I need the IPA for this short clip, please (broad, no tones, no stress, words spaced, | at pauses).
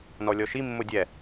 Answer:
nɔlʲɔʃi mːʊdʲɛ